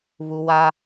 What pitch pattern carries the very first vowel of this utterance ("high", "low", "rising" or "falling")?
high